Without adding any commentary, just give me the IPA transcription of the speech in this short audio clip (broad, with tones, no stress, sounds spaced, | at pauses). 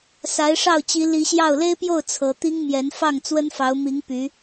s a˧˥ ɪ̯ ʂ ɑ˥˩ ʊ̯ t͡ɕ i˧˥ l i˧˥ ɕ j ɑ˥˩ ʊ̯ l e˥ ɪ̯ p j o˥˩ ʊ̯ t͡sʰ ɤ˧˥ t̪ i˥ ŋ m j ɛ˧˥ n f ɑ˥˩ ŋ t͡s w ə˥ n f ɑ˧˥ ʊ̯ m i˧˥ ŋ p y˧˥